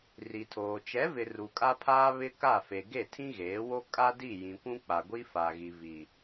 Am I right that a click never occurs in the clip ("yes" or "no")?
yes